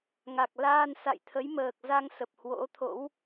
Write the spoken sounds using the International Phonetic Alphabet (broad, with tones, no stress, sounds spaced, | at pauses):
ŋ a˨˩ k̚ l aː˧ n s a̰˧˨ j t̪ʰ ə˨˦ j m əː˨˩ k̚ z a˧ ŋ s ə˨˩ p̚ h w o̰˧˥ t̪ʰ o̰˧˥ w